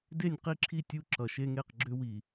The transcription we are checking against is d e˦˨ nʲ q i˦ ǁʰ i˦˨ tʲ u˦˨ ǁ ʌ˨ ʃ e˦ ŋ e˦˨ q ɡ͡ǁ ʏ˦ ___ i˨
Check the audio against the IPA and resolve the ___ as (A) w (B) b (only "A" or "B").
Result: A